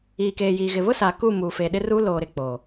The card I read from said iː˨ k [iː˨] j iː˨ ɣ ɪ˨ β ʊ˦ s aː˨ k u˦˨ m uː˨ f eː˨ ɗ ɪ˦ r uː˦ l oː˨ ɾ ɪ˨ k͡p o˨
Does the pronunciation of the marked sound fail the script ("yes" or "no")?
yes